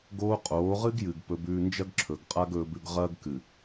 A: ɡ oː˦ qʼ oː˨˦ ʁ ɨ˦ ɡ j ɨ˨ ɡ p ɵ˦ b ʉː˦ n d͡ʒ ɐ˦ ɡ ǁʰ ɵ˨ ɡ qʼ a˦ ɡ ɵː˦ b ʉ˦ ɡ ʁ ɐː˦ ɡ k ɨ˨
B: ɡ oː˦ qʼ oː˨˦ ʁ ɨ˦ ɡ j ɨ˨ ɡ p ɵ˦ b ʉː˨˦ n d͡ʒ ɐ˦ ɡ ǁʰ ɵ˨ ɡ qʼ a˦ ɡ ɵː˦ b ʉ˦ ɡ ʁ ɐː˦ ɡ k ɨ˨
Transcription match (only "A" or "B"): A